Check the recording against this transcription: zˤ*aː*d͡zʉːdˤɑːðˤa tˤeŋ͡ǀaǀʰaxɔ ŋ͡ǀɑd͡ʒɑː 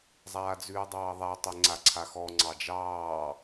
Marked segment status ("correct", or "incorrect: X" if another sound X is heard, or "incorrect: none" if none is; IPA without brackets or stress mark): correct